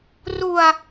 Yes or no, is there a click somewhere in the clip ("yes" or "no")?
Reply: no